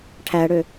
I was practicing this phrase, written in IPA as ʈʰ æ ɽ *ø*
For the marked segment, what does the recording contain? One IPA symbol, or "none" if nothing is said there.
ø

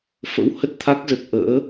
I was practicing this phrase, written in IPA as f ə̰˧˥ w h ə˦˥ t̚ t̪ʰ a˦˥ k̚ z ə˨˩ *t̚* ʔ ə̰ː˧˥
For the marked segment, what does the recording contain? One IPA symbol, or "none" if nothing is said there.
t̚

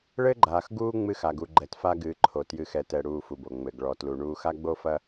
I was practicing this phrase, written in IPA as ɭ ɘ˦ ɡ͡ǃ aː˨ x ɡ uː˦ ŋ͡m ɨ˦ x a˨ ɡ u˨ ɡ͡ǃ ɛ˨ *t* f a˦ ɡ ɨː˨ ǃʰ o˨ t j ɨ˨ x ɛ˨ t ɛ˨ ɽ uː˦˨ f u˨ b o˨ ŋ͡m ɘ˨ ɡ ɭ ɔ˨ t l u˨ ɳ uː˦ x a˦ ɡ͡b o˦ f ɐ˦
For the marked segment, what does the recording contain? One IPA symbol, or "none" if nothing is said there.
t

